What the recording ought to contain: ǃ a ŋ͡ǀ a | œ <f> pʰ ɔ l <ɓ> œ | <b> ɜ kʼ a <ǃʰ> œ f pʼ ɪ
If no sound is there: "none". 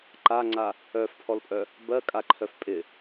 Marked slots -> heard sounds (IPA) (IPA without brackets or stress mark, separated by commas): f, pʼ, b, ǃʰ